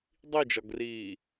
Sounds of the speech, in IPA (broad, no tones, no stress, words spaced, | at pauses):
dˤid͡ʒɒɡriː